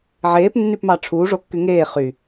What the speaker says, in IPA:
ʕ eː p nː y p m ɑ ʈ͡ʂʰ uː ʐ o kː y ŋ eː χ y

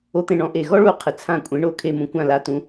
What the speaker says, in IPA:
o˦˥ t̪ ẽ˦˨ ɳ ɔ̃˨˥ ʔ e˨ ɣ ɔ˦˥ ɭ u˦˥ qʰ ɪ˨ t͡sʰ ã˦˨ kʷʼ ẽ˨˥ ɳ o˦˨ kʰ e˦˨ m ũ˨ kʷ ã˦˨ l a˨˥ t ũ˨˥

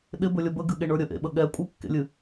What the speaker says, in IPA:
ɗ ɪ b ɵ lʲ ə b ə ɡ ɨ ɠ e ɳ ə˞ ɾʲ ə ʔ ḛ ɓ ə ɠ ɛ kʷʼ ɨ kː ḛ lʲ ɨ

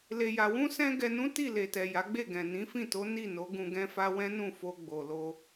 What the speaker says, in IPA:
l e˨ j a˨ w ũ˧ s ɛ̃˧ ɡ ɛ˧ n ũ˦ t i˦˨ l e˨ t ɛ˨ j a˨˦ ɡ͡b e˦˨ ɡ ɛ̃˨ n ĩ˨˦ f ĩ˦˨ t o˨˦ n i˦˨ n o˨˦ ɡ ũ˧ ɡ ɛ̃˦ f a˦ w ɛ̃˦ n ũ˦˨ f o˧ ɡ͡b o˨ l o˧

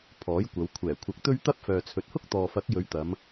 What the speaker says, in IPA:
pʰ ɔː˨˥ j kʷ ɐ˨˧ w kʷʰ ɛː˨˩ kʷʰ ɐ˨˥ k̚ t̪ ɵ˥ ɥ t̪ ɐ˥ p̚ f œː˨ t͡sʰ ɵ˨˥ t̚ h ʊ˥ k̚ t̪ ɔː˨ f ɐ˨˥ k̚ j ɵ˨˧ ɥ t̪ ɐ˨˧ m

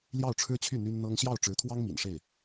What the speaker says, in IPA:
l j ɑ˥˩ ʊ̯ ʈ͡ʂʰ ɻ̩˥ t͡ɕʰ y˥˩ n̪ y˥ n n̪ ɤ˥ ŋ ɕ j ɑ˥˩ ʊ̯ ʈ͡ʂ ɻ̩˧˥ t̪ʰ w ɑ˥ ŋ m ḭ˨˩ n ʂ e˥˩ ɪ̯

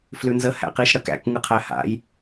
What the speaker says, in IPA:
f l ʉ n z ə h æ̰ q i ʃ ɽ ə k æ̰ k ŋ ɯ qʰ æ h a̰ j

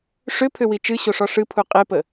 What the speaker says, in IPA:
ʂ ʏ pʰ ʏ w i t͡ʃ ɨ ɕ o ʂ ɔ ʂ ɨ pʰ u qʼ e p ə

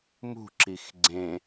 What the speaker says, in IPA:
m ṳ ǁ i x ɡ͡ǀ ẽ

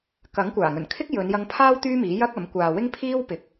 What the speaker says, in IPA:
k ɐ˨˥ ŋ kʷ aː˨˩ ŋ ɵ˨˩ n kʰ ɪ˥ k̚ j ɵ˨˧ n j ɐ˧ ŋ pʰ aː˥ w t̪ yː˥ m iː˨˥ j ɐ˥ k̚ ɐ˨˥ m kʷ aː˨ w ɪ˥ ŋ pʰ iː˥ w p ɪ˨ k̚

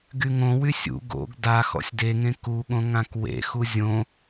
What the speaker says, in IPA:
ɡ y ŋ õ w y sʲ ṵ ɡ o̰ ɡ d a x ɔ̰ sʲ d e ŋ ẽ k u ɠ õ ŋ ã k w ḛ x u zʲ õ

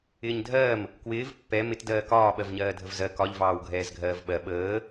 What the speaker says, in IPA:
ɪː ɲ dʱ ɜː m | k w ɪː v pː ɛ m ɪ t d ɜː k ɒː ɓ ɜ v ɲ ɜː dʱ ə v z ɜ k ɒ ʎ v ɑː w ɡʱ ɛː z ɡʱ ɜː v ɓ ɜ ɓ əː

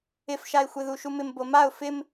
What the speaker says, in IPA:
ɪ f ʃ a ɪ̯ xʷ e ð u ʃ u m ɪ m b o m a ʊ̯ f ɪ m

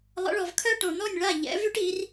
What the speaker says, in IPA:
lˠ ə̰˩˥ ɭ ɔ˩ v kʰ œ˥ ʈ õ˩ n̪ ɔ˥˩ nʲ ɭ a˥˩ ʎ ɛ̰˩˥ v y˥ ʈ i˩˥ r

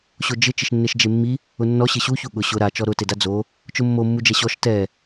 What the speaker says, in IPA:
ɕ o d͡ʒ ɪ t͡ʃ ɪ ʃ nː e ʃ d͡ʒ e mː i | ʊ nː ɔ ɕ ɪ ɕ u ç u ɠ ʊ ɕ ʊ ɾ a t͡ʃ ɔ ɾ ʊ t e d a d͡z o | t͡ʃ ʊ mː o mː u d͡ʒ ɛ ɕ ɔ ʃ t ɛ

